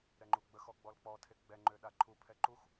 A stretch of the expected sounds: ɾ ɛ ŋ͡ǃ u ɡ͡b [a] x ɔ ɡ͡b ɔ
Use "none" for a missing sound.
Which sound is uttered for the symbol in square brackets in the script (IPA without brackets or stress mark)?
ə